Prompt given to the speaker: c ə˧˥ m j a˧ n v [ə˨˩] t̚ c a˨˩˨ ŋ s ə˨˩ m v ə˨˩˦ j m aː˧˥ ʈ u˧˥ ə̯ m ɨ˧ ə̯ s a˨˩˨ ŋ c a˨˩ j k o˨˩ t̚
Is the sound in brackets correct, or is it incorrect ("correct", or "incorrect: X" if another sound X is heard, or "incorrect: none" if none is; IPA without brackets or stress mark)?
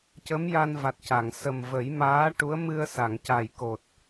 incorrect: a˨˩